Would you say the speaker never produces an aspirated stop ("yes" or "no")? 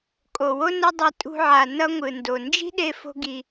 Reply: yes